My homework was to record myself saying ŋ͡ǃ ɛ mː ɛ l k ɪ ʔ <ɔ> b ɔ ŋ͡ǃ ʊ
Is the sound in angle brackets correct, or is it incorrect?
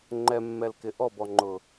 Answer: correct